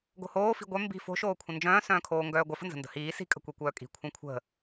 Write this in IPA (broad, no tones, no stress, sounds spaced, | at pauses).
ɡ o̤ h oː f i̤ ɡʷ œ m b i̤ f o̤ ʃ oː kʷʰ ə̃ n d͡ʒ œ̃ː s œ̃ː kʰ oː ŋ ɡ œː ɡʷ œ f ə̤ n z ə̤ n d ə̤ h iː s i̤ kʼ ə̤ kʷ i kʷ œː kʼ i̤ kʷʰ œ̃ kʷʰ ə̤